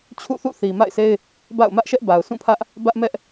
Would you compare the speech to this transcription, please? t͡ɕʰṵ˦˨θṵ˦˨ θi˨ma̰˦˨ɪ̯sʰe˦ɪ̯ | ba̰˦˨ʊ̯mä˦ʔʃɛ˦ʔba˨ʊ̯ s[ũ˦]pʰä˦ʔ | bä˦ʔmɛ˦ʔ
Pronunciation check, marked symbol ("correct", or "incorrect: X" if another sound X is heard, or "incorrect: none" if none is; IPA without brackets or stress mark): incorrect: ũ˦˨